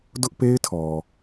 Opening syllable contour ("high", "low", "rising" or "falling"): high